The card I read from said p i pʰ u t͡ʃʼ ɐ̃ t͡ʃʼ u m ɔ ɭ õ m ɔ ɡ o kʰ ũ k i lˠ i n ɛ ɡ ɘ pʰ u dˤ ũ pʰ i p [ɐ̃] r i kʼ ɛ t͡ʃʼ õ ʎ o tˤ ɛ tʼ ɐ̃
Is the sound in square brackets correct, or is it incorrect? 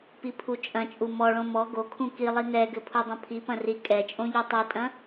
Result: correct